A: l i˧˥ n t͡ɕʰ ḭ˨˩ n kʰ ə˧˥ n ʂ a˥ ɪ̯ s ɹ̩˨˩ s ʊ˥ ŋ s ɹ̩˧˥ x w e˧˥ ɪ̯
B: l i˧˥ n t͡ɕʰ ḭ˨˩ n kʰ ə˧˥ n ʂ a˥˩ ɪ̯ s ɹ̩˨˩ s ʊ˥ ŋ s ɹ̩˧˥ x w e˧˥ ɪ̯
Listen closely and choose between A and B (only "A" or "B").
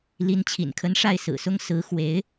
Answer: B